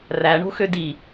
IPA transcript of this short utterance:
r æ ɳ o̤ x ø d i

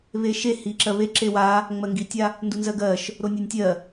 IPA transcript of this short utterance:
β e ʃ e h i ǁ ɜ β e ǁ e w a | ŋ͡m ɜ ŋ ɡ i tʲ a | n d u n z ɜ ɡ ɜ ʃ | ɾ o nʲ e nʲ tʲ ɜ

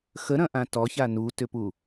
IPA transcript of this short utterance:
x ə ɾ ɐ̃ ʔ ã t ɔ ç a n u t ʏ p u

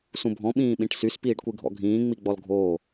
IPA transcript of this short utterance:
s ũ bʱ ɔ̃ ɓ ĩː ɓ ĩ ʈ s y s p iː ɖ kʷ i ɡʱ ɔ̰ ɡʱ ĩː ŋ͡m i ɡ͡b ɔ l ɡʱ oː

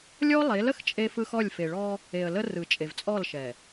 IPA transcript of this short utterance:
lʲ ɔ˦ lˠ e˨˦ l ə˨ x t͡ʃʼ e˦ f ɯ˦ x ɔ˦˨ lʲ f e˨ ɭ ɔ˦ | e˨ ə̯ l ə˦ r ɯ˨ t͡ʃʼ e˨ v t͡sʼ ɔ˦˨ l ʃ ɛ˨

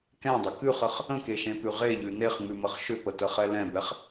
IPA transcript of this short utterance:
k ɛ̃ dˤ ə k ʉ χ ə χ | ə̃ k e ʃ ẽ p ʉ ʁ e ʎ ʉ n e χ ŋ͡m ʉ m ə χ ʃ ʏ p ə t ə χ ɛ l ɛ̃ b ɛ χ

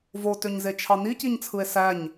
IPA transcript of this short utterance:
v o t ø ɲ z e t͡ʃʰ ɑ n i c i ɲ t͡sʰ ɯ e̯ s æ ɲ

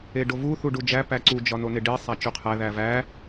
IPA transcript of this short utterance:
e ɖ o v u θ u ɖ u d͡ʒ æ p æ ǀ u d͡ʒ ɒ n o n e ɖ i sˤ æ t͡ʃ u qʰ æ ð æ v æ

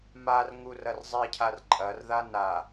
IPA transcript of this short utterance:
m a r ŋ u r ɐ r zˤ i cʰ a r ǃʼ ɐ r ð a n a

